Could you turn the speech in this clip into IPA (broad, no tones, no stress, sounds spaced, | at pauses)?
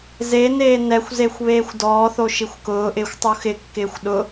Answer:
z e n eː n ɛ xʷ z e xʷ β eː xʷ d ɔː θ o ʃ i xʷ k ʊː ʔ ɪː xʷ tˤ u x ɪ kː ɪː xʷ ɗ ʊ